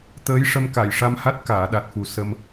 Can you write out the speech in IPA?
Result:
t̪ əː˧˥ j ʂ ə˧ m k a˨˩˨ j ʂ a˧ m h a˦˥ t̚ k aː˨˩˨ ɗ a˨˩ t̚ f u˨˩ s ə˧ m

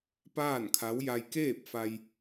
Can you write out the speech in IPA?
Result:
p aː˥˨ n kʰ a˧˥ w j a˧ j k eː˥˨ p̚ f a˧ j

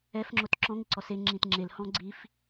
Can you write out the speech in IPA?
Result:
ɛ f ŋ͡ǁ o t ǁ ɔ̃ ŋ ɪ ǀ ɔ s e ŋ͡ǁ ĩ t ŋ͡ǁ e l h ɔ̃ ɡ͡ǀ i f

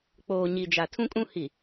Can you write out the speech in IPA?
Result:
k͡p oː˨ ɲ i˨ d͡ʒ a˨ tʰ ũ˦ kʼ ũ˦ h i˨

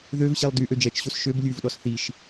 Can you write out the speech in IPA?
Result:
ð ø v ɕ e lˠ d y ʔ ø d͡ʒ ɛ t͡ʃ ɕ o s ʃ ø b lʲ ʉ v ɗ ɔ s θ i ʃ

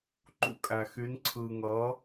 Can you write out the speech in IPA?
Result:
ǃ ṵ˧ kʼ æ˩ x y˩˧ n ǀʰ ɯː˩ ŋ ʌː˩˧

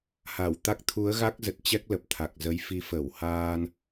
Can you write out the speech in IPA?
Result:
h a˧˩ w t̪ a˦˥ k̚ t̪ʰ u˨˦ ə̯ ɣ a˦˥ k̚ z ə˨˩ t̚ t͡ɕ ɛ˦˥ k̚ l ə˨˩ p̚ t̪ʰ a˨˩ k̚ z ə˨˦ j f i˨˦ f ə˧˩ w h aː˧ n

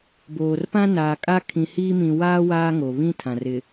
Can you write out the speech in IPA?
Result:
b oː˨ r p ã˦ n aː˨ kʼ a˦ kʰ ĩ˨ h iː˦ m ĩ˨ w aː˦ w aː˦ ŋ o˨ β ĩ˦ tʰ ã˨ r ɪ˨

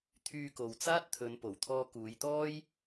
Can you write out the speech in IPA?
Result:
t̪ʰ yː˧ k o˨ w t͡s aː˥ t̚ t̪ʰ ɵ˨˧ n p o˨˩ w t̪ʰ ɔː˧ k uː˨˧ j t̪ ɔː˥ j

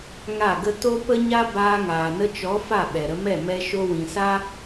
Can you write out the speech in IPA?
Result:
ŋ a˦˨ ɡ ə˦ t o˦ p ə˦ ɲ a˦ b aː˧ ŋ aː˨ n ə˧ t͡ʃ ɔ˨˦ f a˦˨ ɓ ɛ˨ ɾ ə˧ m ɛ˦˨ m ɛ˧ ʃ o˧ w ĩ˨ s a˦

